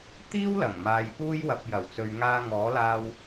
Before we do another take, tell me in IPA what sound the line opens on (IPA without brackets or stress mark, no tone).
t̪